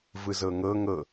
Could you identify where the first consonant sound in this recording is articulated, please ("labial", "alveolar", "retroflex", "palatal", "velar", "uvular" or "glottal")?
labial